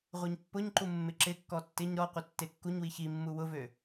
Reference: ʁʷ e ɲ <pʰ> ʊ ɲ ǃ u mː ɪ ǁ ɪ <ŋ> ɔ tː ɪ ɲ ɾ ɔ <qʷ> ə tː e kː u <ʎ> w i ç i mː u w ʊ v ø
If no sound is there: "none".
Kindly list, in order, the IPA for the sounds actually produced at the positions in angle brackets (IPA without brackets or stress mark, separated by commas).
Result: pː, kː, qʷ, ɲ